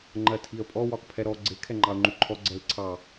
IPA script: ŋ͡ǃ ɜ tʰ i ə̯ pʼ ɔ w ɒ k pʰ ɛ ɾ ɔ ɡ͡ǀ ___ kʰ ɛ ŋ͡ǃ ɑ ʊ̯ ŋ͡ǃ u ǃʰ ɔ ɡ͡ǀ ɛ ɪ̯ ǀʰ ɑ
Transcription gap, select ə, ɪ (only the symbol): ɪ